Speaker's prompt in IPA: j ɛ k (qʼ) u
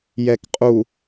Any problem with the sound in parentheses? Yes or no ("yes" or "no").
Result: no